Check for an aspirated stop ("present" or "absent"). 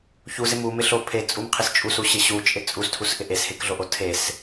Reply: present